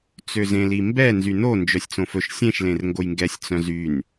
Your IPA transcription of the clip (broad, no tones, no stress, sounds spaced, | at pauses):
t͡s ø z ẽ l i m b ɛ n z y n o n d͡ʒ œ sʲ t͡s õ f ɵ ʃ sʲ ẽ ʃ l ẽ r ŋ ɡ o j ŋ ɡ ɛ sʲ t͡s œ̃ z y n